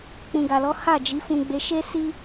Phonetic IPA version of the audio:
k͡p ũ˨ ɡ a˨ l ɔ˨˦ h a˦˨ d͡ʒ i˨˦ f ũ˧ ɡ͡b e˧ ʃ e˦ s i˦

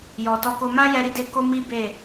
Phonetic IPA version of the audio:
j ɔ˨ t ɔ˧ k o˧ m ã˦ j ɛ˧ ɾ i˧ d e˧ k o˦ m i˦ b e˦˨

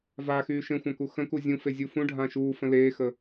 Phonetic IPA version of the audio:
v a x yː ʃ ẽ xʷ ã k u x ə̃ k u zʲ ũ f e zʲ u f ũ ɖʱ ã ʃ uː f ə̃ l eː x ə

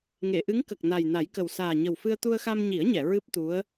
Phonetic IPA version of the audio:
ŋ e˨˩˨ ʔ ɨ˧˥ ŋ k ə˨˩ k̚ n a˨˩ j n a˨˩˦ j k ə˨˩ w s aː˨˩ ɲ ə˨˩ w f ɨ˧ ə̯ t̪ u˧ ə̯ x a˧ m ɲ i˨˩˦ ə̯ ɲ ɛ˨˩˨ ɹ ɨ˦˥ p̚ t̪ u˧˥ ə̯

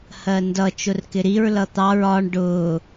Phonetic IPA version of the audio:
h ɜ n d ʌ t͡ʃ ʊ r k ɪ ɾ i ɹ l ʌ t̪ ɑ ɹ ɒ ɳ ɖ ʊː

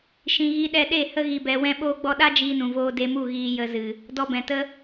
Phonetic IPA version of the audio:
ʃ ĩ˨ ɣ i˧ ɗ ɛ˧ ɗ e˦˨ h ə˧ ɣ i˨ b ɛ˨ w ɛ̃˧ ɓ oː˧ ɡ͡b ɔ˧ ɗ a˦ d͡ʒ iː˧ n ũ˨ v oː˧ d e˧ m u˦˨ ɣ iː˧ j ə˧ z ɨ˨ | d ɔ˧ b ɛ̃˨ t ə˦

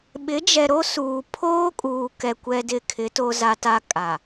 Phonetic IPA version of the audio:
ɓ ɪ˨˦ d͡ʒ ɛ˨ ɾ o˦ s uː˨ pʰ oː˦ kʼ uː˨ k ɛ˨ kʷ ɛ˦ d ɪ˦ kʰ ɪ˨˦ t o˦ z a˦ t a˦ kʼ a˨

